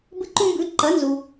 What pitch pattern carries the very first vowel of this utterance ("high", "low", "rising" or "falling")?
high